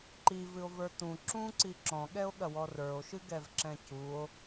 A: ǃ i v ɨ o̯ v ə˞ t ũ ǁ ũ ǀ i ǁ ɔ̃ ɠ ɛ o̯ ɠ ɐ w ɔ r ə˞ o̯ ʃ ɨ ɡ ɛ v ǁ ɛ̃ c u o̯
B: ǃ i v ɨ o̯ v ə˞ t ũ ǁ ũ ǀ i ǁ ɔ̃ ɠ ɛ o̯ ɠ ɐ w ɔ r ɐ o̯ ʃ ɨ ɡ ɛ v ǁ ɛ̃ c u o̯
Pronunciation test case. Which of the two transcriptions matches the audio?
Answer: A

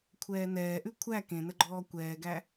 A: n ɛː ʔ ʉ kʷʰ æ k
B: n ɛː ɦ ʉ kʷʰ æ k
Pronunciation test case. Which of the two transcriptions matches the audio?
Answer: A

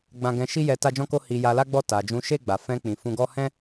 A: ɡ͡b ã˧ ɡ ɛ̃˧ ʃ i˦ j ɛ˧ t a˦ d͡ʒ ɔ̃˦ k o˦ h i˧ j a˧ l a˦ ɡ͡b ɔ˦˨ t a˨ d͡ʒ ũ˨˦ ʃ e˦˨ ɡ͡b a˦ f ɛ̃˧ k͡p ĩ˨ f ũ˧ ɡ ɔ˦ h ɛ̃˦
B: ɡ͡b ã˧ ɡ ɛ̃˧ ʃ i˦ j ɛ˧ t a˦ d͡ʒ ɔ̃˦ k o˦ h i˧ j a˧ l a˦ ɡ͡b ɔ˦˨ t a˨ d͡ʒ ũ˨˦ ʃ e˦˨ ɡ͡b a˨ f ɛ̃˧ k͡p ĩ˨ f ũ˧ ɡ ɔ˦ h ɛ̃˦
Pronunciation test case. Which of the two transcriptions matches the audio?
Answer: B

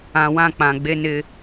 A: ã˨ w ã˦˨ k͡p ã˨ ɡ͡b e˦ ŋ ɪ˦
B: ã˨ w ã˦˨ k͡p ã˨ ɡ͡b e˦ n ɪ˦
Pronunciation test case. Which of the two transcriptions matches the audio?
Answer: B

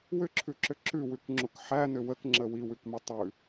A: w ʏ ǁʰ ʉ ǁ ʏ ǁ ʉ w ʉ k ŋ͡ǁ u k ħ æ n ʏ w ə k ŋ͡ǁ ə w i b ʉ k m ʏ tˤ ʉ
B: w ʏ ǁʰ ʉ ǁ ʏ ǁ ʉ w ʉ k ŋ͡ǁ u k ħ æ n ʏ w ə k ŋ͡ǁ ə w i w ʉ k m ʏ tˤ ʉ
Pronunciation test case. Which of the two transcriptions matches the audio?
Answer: B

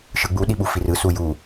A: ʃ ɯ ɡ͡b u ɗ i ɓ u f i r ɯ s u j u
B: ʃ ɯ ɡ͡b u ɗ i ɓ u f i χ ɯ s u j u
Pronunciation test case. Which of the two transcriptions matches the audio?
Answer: A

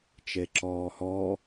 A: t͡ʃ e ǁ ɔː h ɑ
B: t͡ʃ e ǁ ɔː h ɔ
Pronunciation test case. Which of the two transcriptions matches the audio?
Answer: B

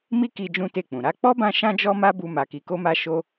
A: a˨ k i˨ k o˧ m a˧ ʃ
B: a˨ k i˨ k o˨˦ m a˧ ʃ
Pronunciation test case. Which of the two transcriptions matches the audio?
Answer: A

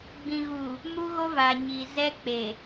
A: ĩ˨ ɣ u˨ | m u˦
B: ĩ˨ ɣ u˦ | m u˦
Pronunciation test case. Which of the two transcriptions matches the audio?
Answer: A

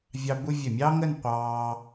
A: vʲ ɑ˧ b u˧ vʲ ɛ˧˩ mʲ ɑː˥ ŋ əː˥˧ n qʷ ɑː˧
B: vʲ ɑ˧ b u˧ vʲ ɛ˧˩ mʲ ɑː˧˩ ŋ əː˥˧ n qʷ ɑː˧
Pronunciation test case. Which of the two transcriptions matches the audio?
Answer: A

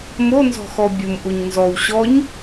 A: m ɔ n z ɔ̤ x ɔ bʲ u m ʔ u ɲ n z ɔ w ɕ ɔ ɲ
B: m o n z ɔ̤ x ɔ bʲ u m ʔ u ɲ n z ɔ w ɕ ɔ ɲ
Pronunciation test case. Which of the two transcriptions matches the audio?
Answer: B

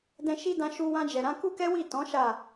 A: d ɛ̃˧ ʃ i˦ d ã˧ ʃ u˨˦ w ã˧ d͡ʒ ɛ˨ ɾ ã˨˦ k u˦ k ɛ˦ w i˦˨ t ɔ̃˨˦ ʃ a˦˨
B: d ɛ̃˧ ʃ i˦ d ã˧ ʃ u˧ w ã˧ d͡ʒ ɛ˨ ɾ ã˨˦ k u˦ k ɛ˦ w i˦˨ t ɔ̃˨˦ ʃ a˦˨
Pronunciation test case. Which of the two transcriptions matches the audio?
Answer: B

